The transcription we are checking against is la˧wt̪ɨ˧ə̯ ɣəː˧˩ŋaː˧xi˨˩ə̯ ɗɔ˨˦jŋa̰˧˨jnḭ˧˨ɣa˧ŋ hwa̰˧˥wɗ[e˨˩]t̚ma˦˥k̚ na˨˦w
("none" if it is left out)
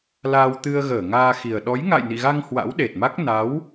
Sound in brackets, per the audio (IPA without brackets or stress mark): e˨˩